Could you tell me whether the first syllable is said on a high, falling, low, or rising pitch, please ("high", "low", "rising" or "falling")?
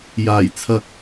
low